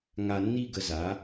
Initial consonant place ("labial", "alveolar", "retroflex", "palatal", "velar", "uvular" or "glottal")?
velar